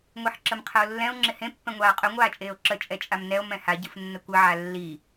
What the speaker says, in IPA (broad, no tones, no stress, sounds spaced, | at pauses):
ŋʷ i ħ ǁ ə m qʰ ə o̯ lː ɛ̃ o̯ ŋ͡ǁ ɪ h ẽ pː ɛ̃ ŋʷ aː qʼ ɵ ŋʷ aː t͡ʃʼ eː o̯ ǁ ə t͡ʃʼ ɛ t͡ʃʼ a m n ɛ o̯ m ɛ̃ h a ɟ ɨ f nː ə kʷ ɨ ʕ a lː i